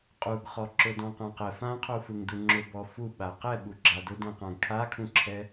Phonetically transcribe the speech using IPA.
qʼuɡχɔ ǁʊdɔ̃qãqɛ fãqʰu fɯŋduŋ͡ǁʊ bɔfu ɓaqɛɓu ɡ͡ǁadʊdɛ̃qãɡ kʰakʰũǁʰɛ

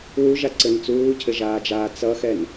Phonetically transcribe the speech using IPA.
wuʒaǀɘn t͡suːcʰɘʒaːd͡ʒaː t͡sʌxɛn

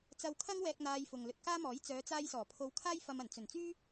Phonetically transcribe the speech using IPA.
t͡sɐ˧wkʰɐ˥ŋwɛː˧k̚ n̪aː˧jfʊ˨ŋ lɵ˨t̚kaː˥mɔː˨˥j t͡sœː˨˧t͡saː˧j sɔː˨˩pʰo˧wkʰaː˥jfɐ˧m ɐ˨˩nt͡sɵ˨˩nt͡syː˥

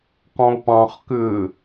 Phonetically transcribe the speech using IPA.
qɔ̃ʊ̯pɑ̃χ kʏː

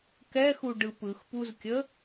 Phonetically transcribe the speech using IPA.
kɛxu ɖɯpɯxpuzkʲə

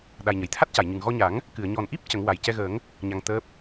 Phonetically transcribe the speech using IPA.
ɗa˨˩jɲə˨˩˨jt̪ʰa˦˥t̚ca˨˩˨j ɲɨ˨˩ŋɣɔ˧ɲa˨˩˦ŋ | kɨ˨˩˨ə̯ɲɔ˨˩nʔi˦˥p̚ cə˨˩˦ŋwa˨˩j cɛ˧ɣəː˨˩˦ŋ | ɲa˧ŋ t̪əː˦˥p̚

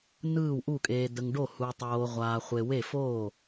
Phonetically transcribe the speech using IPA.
nɯː˥˩wʔu˥˩kʼeː˨ də˨ŋɖo˥˩ hu˨tˤoː˨ ʁʷaː˨ χʷe˨we˥˩ foː˥˩

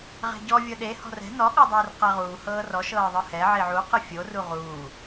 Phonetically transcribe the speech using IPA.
ʁɛ̤ɟɔ vʲɤɗe hɔ̤rɛ̤ nɔ ɠɔdˤɤːrqɛʁuː hɤːrɔ ʃɤːðˤɯhɛ ʕiʕu qɯfʲo ruʁuː

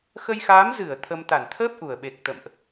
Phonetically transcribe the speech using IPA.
xə˧jxaː˨˦mzɨ˧˩ə̯ t̪ʰə˧m t̪a˧˩nt̪ʰəː˦˥p̚ ʔu˧˩ə̯ɓe˨˩k̚t̪ə̰˧˨mʔ

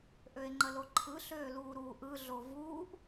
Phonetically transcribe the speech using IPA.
ʔøe̯ŋ͡ǃəloǃʰɯ ɬøːluːɾuːʔɯ ɮovuːʔ

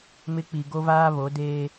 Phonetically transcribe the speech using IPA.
mɪ˦k͡pi˨ ɡo˦vaː˦ βo˨˦deː˦

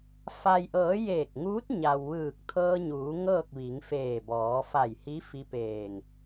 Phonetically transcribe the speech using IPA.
fa˩jʔɤː˩˧ jeː˧˩k̚ŋuː˧˥t̚ ɲa˩wʋɯː˧˩k̚t̪ʰɤː˧ɲuː˩˧ ŋɤː˥˨k̚ʋi˩˧ŋfeː˧˩ bɔː˩˧fa˧˩jhi˧˥ fi˧˥peː˧˩ŋ

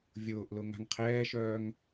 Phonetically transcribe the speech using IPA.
vʲʊːʔlʊ ŋa̤ŋqʰɛːʃœːŋ

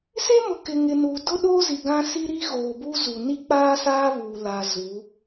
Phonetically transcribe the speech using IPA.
se˦mʊ˨kɪ˨ ŋɪ˨nuː˨ dʊ˦ɗo˦ zi˨ɡã˦si˦ ɾi˦ɣoː˨buː˦zu˨ ni˦k͡paː˦saː˦ βuː˨la˨ zu˨˦

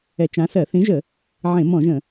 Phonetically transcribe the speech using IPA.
ɛ˧˩˧t͡ʃã˨˦sɜ˧˩˧ θĩ˨˦ʒə˧˩˧ | ʕẽ˧˩˧mɔ̃˧˩˧ʒə̃˧˩˧

